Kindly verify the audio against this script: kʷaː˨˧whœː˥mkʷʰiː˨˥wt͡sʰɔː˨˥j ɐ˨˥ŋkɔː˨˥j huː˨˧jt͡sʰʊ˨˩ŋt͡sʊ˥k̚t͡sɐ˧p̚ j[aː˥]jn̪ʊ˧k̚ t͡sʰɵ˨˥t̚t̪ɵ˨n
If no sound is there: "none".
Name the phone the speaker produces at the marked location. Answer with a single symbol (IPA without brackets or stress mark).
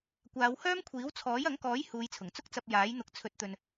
aː˨˥